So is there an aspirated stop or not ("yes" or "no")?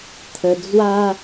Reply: yes